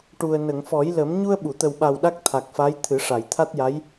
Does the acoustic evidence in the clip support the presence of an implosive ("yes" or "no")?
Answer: yes